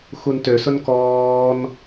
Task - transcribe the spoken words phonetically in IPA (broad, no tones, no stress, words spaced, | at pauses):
xuntøsʊn kɔːn